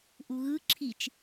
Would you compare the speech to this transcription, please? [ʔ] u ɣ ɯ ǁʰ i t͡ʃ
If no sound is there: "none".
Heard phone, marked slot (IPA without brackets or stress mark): ʔ